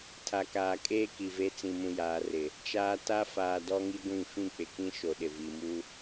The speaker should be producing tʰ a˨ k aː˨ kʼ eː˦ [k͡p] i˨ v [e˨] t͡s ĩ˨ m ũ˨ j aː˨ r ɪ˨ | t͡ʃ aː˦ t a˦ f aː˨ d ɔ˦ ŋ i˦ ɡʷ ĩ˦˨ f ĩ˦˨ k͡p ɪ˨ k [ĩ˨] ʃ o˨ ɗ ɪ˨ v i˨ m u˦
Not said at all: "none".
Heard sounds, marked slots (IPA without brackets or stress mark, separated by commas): k, e˦, ĩ˦